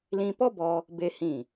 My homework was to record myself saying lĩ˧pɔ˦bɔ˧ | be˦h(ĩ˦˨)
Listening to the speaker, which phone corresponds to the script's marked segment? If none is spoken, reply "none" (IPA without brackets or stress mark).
ĩ˦˨